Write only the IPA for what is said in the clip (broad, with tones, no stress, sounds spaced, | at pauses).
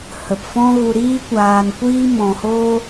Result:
h ə˨ p f ɔ̃˦ ɣ u˧ ɾ iː˦ kʷ aː˧ n kʷ iː˦ m ɔ̃˧ h oː˦